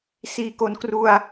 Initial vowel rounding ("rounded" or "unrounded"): unrounded